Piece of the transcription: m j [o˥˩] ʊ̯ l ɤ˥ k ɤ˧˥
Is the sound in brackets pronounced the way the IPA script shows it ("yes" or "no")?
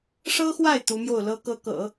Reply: yes